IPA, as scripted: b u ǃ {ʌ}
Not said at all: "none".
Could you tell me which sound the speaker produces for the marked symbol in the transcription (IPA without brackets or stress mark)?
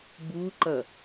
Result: ʌ